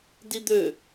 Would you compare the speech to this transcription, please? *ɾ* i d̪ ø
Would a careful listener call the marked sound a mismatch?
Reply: yes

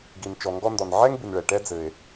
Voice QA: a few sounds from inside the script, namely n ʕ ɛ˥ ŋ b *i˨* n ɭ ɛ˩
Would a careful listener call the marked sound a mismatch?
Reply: no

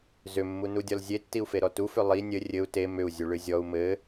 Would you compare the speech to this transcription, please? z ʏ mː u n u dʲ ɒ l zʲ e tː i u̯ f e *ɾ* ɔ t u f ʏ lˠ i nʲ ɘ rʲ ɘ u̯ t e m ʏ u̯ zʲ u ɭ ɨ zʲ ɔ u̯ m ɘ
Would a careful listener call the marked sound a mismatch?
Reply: no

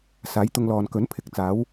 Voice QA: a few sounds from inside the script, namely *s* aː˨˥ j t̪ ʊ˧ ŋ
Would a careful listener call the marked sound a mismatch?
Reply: no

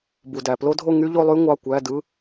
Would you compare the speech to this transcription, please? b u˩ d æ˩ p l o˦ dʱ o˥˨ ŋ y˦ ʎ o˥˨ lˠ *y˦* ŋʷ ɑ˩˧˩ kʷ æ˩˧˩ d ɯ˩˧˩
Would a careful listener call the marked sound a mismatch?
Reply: no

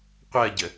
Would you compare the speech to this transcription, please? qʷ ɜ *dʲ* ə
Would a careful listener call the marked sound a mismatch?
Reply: yes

